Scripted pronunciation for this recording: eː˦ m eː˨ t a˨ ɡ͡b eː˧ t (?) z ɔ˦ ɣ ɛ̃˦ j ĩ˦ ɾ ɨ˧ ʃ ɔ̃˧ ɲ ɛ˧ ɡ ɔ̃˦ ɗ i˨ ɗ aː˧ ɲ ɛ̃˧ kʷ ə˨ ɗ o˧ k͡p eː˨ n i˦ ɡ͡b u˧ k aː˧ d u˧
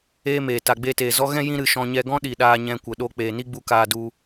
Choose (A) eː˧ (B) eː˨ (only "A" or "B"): B